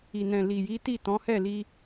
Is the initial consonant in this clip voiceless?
no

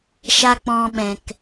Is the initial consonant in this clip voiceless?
yes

